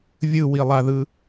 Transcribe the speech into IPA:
vʲ ɯ w i lˠ a ð ɯ

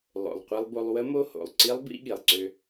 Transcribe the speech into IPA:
lˠ o̰˨˩ lˠ qʷ i˧ lˠ b o˧ lˠ w ə˦˥ m o˦˥ h o̰˨˩ lˠ ǀ i˦˥ lˠ b ḭ˦˥ ɠ i˨˩ lˠ ǀ ø˧

